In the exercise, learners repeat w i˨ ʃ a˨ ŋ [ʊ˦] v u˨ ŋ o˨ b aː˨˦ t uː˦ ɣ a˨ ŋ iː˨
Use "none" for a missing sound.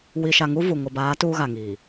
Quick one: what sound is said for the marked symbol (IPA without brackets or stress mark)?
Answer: u˦